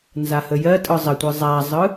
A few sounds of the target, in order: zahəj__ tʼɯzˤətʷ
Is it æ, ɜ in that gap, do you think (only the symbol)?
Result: ɜ